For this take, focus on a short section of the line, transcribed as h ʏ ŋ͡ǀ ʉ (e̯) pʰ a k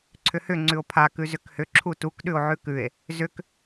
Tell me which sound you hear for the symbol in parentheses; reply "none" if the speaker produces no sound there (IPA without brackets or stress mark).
o̯